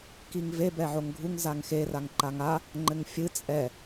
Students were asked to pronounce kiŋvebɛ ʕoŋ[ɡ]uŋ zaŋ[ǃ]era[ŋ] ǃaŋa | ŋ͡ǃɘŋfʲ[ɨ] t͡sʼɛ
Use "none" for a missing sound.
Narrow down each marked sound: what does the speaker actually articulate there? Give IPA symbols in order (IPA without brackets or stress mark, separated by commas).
ɡʱ, x, ŋ, ɨ